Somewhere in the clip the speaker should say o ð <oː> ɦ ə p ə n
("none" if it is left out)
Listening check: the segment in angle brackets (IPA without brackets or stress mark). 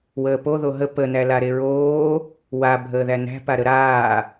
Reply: o